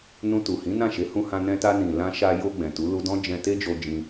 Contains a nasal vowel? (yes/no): yes